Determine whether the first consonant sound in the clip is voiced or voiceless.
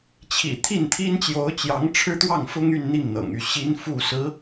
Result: voiceless